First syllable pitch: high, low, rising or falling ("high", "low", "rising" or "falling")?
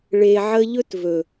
low